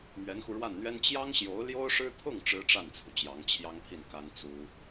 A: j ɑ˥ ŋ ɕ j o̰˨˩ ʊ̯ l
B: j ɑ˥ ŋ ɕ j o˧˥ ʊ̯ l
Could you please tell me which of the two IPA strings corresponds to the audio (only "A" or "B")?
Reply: B